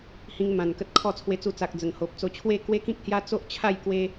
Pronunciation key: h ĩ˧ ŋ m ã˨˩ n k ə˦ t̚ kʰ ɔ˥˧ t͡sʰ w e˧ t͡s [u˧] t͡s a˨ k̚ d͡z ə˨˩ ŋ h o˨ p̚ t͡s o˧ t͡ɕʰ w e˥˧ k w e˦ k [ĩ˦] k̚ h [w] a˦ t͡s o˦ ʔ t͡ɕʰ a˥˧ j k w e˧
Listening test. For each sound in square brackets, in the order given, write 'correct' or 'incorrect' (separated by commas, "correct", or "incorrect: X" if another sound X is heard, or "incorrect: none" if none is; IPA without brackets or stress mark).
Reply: correct, correct, incorrect: j